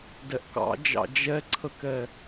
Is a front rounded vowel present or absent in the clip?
absent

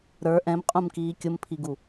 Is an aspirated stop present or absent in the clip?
present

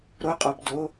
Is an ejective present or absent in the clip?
present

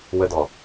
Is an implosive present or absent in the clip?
absent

